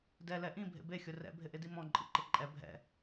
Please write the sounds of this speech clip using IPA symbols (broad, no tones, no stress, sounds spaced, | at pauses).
d ɛ l ɛ ʔ ĩ bʱ ḛ b e xʲ ʊ r ɛ̰ bʱ ɪ ʔ ɪ d i m ɔ̃ ǃʼ ḭ ǃ ɪ ǃʼ ɛ bʱ ɛ̰